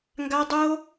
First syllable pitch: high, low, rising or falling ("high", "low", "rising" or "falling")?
high